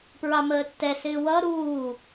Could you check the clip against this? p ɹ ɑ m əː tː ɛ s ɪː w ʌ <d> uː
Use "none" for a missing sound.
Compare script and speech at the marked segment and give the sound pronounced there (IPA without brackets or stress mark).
ɾ